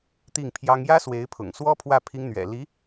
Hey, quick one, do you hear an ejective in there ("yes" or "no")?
no